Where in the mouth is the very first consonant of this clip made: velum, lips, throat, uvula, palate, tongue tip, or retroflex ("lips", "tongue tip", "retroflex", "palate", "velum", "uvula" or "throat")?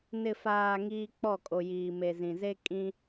tongue tip